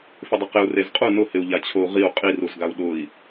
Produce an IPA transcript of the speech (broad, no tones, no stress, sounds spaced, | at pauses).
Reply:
f ɪ dˤ ɪ q ɪ u̯ r e z qʼ u n ʊ h ɪ u̯ ʎ a t͡ɕʰ o u̯ ʁ i u̯ qʼ i r u z ɡ a u̯ ɗ ʊ i̯